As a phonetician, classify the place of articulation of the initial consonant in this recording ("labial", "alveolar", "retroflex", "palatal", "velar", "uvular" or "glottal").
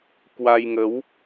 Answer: velar